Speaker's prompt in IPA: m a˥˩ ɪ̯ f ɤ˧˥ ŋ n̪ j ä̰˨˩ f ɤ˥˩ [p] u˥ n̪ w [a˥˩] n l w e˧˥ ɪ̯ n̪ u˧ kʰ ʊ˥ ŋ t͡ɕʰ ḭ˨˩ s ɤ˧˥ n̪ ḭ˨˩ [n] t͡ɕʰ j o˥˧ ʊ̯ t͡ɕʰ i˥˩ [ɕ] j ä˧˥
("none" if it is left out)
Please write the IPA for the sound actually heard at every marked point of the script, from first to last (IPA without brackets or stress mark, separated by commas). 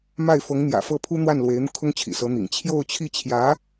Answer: pʰ, a˥˩, ŋ, t͡ɕʰ